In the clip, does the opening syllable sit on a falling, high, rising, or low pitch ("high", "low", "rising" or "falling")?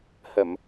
low